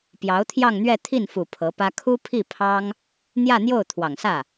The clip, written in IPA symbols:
p j ɑ˧˥ ʊ̯ t̪ʰ j ɑ˥˧ ŋ n̪ ɥ ɛ˥˧ t̪ʰ i˥˩ n f u˨˩ pʰ ɤ˧˥ p ä˥ kʰ u˥ pʰ i˥˩ pʰ ɑ˥ ŋ | n̪ j ä˥˧ n̪ j o˥˩ ʊ̯ t̪ʰ w ɑ˨˩ ŋ s ä˥˩

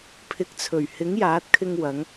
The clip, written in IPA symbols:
pʰ ɪ˨˥ k̚ t͡sʰ ɵ˨˩ ɥ h ɪ˨˥ ŋ j aː˨˥ t̚ kʰ ɪ˧ ŋ w ɐ˨˧ ŋ

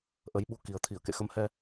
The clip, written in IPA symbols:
ʔ ə˨˦ j ɓ u˧ k i˨˩ ə̯ t̪ʰ i˧˩ ə̯ k ḛ˧˨ x ə˨˦ m h ɛ˧

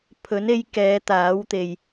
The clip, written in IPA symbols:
pʰ ɵ˨˥ n e˧ j k ɛː˨˧ t̪ aː˨˥ w t̪ e˨ j

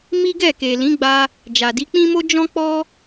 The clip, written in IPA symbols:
m i˦ ɡ ɛ˦˨ k e˨ l ĩ˨˦ ɡ͡b a˧ | d͡ʒ a˨ d i˨˦ k͡p ĩ˦ m o˦ d͡ʒ ɔ̃˦ k͡p ɔ˦

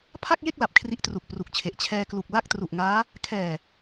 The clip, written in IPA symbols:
pʰ a˥˩ k̚ j e˥˩ k̚ l a˨˩ p̚ kʰ r i˦˥ ʔ t r u˨˩ k̚ p r u˨˩ k̚ t͡ɕʰ e˨˩ ʔ t͡ɕʰ ɛː˧ k l u˨˩ k̚ l a˥˩ k̚ t r u˨˩ ʔ ŋ aː˦˥ | kʰ ɛː˨˩

